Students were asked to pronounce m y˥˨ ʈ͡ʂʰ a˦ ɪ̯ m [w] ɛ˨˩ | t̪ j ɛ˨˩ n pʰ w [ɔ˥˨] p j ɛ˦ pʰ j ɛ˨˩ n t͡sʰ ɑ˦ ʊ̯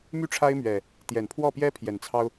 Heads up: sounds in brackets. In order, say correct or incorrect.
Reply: incorrect: ɥ, correct

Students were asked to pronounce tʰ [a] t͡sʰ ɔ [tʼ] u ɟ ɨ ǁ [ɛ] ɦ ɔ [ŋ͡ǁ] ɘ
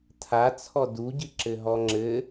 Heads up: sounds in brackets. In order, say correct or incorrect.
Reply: correct, incorrect: d, incorrect: ɘ, correct

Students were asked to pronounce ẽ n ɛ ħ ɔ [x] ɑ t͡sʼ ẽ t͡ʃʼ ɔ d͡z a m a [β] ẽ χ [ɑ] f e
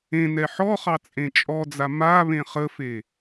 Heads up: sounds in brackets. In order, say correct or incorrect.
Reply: incorrect: χ, correct, incorrect: ə

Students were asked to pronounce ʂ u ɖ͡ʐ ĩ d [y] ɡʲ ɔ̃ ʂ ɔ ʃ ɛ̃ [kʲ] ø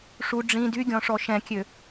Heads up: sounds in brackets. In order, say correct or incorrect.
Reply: correct, correct

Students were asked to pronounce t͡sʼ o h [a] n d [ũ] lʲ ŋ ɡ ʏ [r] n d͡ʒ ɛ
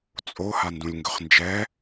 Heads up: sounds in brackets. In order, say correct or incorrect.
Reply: correct, correct, incorrect: χ

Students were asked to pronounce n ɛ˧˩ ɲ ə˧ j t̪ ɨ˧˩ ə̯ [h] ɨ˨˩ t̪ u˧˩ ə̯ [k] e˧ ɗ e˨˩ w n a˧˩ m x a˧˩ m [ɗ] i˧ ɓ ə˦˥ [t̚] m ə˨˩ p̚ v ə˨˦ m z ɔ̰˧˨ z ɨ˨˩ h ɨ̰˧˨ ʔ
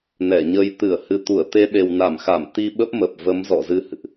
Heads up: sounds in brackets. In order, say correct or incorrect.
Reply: correct, incorrect: t̪, incorrect: t̪, incorrect: p̚

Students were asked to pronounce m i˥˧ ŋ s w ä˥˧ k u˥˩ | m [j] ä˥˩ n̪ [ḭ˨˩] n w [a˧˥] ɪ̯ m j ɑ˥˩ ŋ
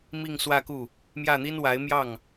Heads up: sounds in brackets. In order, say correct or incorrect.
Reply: correct, incorrect: i˥, correct

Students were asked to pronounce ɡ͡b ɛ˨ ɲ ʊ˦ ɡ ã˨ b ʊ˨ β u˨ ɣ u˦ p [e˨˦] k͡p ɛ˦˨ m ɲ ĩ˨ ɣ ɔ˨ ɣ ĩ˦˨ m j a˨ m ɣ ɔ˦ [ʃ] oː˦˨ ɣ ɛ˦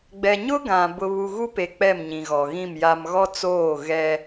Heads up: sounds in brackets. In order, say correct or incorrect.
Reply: incorrect: e˨, incorrect: t͡s

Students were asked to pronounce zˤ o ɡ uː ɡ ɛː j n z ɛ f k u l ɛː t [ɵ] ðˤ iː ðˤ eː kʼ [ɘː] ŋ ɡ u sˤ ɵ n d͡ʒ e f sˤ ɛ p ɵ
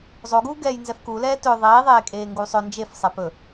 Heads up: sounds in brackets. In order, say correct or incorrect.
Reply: correct, incorrect: eː

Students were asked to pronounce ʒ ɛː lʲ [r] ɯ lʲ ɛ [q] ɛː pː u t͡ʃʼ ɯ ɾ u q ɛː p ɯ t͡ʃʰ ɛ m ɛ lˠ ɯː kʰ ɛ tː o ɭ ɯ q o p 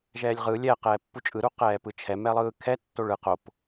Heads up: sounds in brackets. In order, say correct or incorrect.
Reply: incorrect: ʁ, correct

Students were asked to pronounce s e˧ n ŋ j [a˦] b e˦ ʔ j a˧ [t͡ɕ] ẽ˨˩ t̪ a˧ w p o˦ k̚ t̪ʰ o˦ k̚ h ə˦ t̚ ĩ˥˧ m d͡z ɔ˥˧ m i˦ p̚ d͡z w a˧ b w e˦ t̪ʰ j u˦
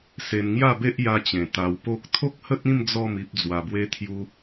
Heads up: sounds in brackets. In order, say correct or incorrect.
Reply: incorrect: a˥˧, correct

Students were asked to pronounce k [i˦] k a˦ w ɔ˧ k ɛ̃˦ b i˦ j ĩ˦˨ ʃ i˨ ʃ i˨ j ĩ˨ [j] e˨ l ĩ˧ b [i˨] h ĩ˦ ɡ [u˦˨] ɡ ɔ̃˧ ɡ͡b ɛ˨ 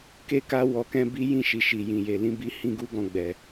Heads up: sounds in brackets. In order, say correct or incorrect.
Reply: incorrect: e˦, correct, incorrect: i˧, incorrect: u˦

